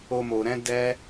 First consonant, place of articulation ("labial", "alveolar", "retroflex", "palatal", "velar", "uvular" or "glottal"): labial